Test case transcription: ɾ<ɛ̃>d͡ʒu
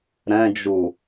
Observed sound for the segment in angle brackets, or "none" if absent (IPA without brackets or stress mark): ɛ̃